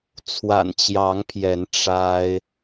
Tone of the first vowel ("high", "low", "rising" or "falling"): low